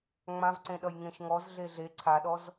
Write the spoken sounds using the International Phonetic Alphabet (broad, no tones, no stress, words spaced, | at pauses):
ŋ͡mãvǀẽɗʌj ŋẽʃŋɔz ɮeɮe ǀʰaɗɔz